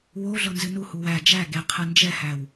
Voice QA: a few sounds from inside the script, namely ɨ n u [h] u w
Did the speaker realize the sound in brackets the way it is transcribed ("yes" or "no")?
yes